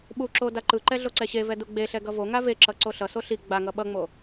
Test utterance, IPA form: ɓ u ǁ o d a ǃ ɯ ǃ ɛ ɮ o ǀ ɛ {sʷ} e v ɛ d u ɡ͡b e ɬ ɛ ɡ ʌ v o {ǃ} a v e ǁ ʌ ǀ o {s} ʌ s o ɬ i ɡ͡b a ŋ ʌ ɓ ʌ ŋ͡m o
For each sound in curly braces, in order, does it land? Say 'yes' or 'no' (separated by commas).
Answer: no, no, no